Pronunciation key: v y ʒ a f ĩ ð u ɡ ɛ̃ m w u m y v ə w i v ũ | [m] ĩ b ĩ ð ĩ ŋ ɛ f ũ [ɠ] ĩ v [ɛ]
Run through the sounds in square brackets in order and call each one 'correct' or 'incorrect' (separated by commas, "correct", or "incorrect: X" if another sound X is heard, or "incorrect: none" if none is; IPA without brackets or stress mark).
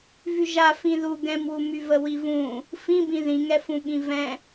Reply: incorrect: f, correct, incorrect: ɛ̃